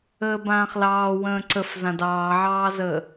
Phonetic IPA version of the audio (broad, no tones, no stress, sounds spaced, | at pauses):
əː b ãː χ l ɑː w ə̃ː ǀ ə f z ã d ɑː ʕ ɑː z əː